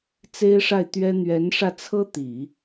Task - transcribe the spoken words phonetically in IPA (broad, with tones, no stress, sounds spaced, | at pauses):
t͡s e˥ ɪ̯ ʂ a˥˩ ɪ̯ t̪ ɥ ɛ˥ n̪ ɥ ɛ˧˥ n ʂ ä˧ t͡sʰ ɤ˥ t̪ i˨˩˦